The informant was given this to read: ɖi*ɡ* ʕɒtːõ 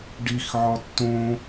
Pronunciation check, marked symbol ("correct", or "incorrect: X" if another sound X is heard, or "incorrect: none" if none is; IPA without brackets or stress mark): incorrect: x